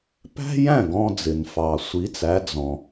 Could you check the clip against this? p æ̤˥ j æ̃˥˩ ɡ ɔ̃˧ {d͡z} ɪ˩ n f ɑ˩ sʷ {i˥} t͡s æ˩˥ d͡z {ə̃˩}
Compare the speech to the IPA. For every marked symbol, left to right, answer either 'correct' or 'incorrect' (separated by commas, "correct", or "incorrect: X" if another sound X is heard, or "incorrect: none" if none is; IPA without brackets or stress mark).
correct, incorrect: i˩˥, incorrect: ɔ̃˩